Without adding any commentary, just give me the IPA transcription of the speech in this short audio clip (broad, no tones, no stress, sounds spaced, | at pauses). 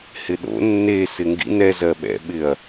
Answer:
h ɪ ɗ o̰ nː e s ɪ ŋ ɡ ḭ n ɛ z ɜ ɓ ɛ̰ ɓ ɪ ɐ̯